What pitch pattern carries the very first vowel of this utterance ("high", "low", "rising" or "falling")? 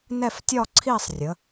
falling